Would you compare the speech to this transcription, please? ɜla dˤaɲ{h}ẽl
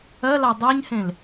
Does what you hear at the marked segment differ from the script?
no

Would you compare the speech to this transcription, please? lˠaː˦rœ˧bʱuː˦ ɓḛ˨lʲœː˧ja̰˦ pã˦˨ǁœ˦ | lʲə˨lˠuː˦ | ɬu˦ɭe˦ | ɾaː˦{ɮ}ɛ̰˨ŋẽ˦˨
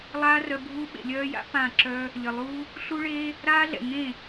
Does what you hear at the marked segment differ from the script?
no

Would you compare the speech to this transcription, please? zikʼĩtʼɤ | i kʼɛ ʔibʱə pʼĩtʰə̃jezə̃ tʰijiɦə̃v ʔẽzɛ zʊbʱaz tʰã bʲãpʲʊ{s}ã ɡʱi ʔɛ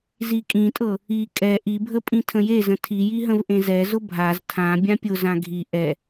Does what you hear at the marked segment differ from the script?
yes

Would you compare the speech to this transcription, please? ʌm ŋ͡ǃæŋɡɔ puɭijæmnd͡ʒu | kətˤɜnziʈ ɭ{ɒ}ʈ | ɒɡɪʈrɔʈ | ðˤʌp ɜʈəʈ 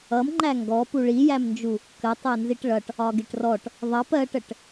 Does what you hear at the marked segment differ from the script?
yes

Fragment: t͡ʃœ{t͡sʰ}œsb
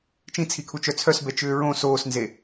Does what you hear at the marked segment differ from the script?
no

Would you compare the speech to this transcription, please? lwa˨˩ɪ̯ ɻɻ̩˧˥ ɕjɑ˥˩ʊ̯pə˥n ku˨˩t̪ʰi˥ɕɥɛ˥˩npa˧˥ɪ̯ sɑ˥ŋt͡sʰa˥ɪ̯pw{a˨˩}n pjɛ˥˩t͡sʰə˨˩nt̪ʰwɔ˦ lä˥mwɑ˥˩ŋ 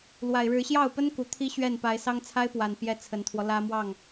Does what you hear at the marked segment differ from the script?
no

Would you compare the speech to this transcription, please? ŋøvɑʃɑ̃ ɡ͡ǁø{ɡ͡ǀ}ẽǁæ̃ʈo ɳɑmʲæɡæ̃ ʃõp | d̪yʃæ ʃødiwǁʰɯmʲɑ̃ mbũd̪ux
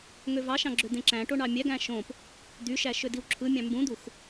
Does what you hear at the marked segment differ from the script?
yes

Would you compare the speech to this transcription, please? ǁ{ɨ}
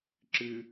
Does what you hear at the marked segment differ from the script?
no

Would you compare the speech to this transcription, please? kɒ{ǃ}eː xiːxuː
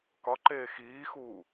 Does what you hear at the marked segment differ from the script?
no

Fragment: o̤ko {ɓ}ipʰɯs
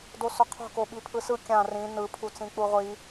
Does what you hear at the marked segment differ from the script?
no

